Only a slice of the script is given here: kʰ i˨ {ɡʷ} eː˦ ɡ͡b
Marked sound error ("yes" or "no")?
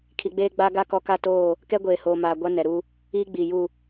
yes